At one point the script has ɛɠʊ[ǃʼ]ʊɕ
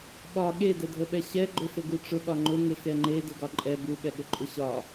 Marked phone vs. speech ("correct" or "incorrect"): correct